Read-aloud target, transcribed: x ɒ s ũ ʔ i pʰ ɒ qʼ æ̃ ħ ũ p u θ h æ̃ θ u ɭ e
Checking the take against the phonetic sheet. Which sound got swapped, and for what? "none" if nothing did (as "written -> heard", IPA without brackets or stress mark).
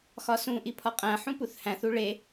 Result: none